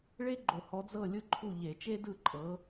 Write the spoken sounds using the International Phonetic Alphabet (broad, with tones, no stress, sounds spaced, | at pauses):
ɭ e˥ ɡ͡ǃ o˧˩˧ h ɔ˨˥ d͡z ɤ˥˩ lʲ ɯ˥˩ ǃʰ u˥˩ ʎ e˧˩˧ t͡ʃ e˥ d ɯ˥˩ ǃʼ ɤ˨˥